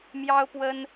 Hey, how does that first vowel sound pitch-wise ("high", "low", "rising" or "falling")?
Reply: high